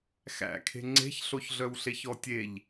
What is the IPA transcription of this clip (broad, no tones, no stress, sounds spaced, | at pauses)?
x æ̰ kʰ e̤ ŋ͡ǀ e̤ ç ɬ o ç ɮ œ w ɬ e ç ɔ tʲ e ʎ